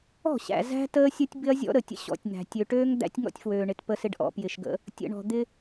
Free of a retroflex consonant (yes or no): no